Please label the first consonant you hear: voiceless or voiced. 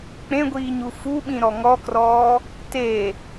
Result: voiceless